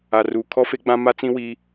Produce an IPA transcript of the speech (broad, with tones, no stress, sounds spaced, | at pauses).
a˨ r uː˨ kʰ ɔ˦ f e˦ ɡ͡b ã˦ m a˦ t͡s ĩ˦ w iː˦